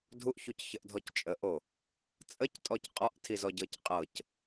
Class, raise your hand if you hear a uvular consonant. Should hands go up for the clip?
yes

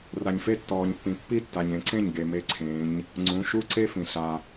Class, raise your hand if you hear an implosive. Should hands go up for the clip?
no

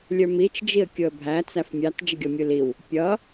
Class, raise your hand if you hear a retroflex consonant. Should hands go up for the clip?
no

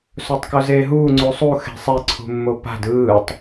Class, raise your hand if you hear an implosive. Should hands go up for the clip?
no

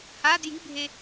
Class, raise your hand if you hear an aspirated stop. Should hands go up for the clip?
no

